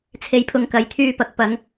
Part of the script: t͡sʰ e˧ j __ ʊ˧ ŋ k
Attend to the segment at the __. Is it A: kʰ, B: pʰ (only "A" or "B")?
B